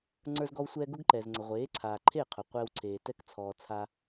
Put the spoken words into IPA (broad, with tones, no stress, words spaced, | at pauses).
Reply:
ŋ͡ǀə˞˥zɡɔ˥wsʷɛː˥ ɡʊ˥ɡǃɛ˩zŋ͡ǀə˩ ʁʷeː˩˥ǀʰaː˩ ǃʰe˥˩qʰʊ˩ qʷɛː˧wǀʰeː˩ tɛ˥˩kt͡sʰɔː˩t͡sʰa˧